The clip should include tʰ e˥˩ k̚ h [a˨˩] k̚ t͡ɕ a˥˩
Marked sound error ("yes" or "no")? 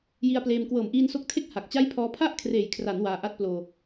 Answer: no